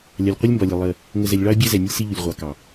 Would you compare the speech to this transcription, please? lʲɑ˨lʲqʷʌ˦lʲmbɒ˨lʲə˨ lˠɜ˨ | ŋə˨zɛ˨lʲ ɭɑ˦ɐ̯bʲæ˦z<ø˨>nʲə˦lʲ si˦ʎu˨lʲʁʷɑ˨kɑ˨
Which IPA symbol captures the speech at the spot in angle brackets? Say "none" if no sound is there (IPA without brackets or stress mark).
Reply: ɛ˨